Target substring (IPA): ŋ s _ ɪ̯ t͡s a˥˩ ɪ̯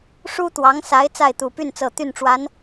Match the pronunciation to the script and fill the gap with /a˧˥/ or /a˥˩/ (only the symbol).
a˧˥